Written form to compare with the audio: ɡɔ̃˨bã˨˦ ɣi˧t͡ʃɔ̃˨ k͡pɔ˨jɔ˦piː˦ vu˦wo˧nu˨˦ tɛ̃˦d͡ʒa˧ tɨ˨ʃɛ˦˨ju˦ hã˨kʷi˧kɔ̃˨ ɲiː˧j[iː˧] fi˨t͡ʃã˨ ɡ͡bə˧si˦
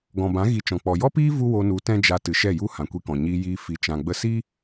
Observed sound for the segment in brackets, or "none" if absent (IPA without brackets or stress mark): iː˧